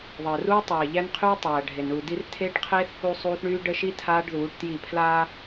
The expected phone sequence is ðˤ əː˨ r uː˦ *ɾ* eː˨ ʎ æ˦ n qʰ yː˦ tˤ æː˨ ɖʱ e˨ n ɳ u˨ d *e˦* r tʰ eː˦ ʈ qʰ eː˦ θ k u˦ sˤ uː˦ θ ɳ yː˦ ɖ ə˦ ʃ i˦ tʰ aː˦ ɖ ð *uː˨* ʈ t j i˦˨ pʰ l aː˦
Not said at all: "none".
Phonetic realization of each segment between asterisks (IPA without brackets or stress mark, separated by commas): tˤ, i˦, uː˨˦